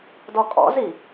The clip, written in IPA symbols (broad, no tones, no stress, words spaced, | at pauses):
dɔkʼɔ̰zi